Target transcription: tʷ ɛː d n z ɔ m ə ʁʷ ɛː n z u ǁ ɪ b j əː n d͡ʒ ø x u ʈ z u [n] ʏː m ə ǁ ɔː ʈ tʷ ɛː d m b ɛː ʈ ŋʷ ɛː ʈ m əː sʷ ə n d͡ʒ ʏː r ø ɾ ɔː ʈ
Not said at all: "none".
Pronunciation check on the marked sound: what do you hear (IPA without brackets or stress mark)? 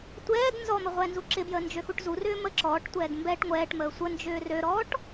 r